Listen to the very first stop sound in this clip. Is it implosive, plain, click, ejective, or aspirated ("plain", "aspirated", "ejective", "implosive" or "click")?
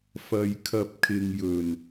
aspirated